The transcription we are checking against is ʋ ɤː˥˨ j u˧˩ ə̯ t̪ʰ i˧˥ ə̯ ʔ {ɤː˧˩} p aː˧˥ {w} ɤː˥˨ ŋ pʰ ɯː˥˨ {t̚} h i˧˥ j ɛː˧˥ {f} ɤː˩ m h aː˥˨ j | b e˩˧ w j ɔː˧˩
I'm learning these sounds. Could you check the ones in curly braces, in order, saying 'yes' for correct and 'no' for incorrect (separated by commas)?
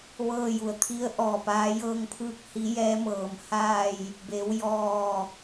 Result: no, no, no, no